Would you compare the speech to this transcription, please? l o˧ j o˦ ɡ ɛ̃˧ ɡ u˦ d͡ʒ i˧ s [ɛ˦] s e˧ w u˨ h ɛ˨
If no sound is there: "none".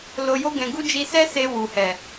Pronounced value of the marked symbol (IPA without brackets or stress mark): ɛ˦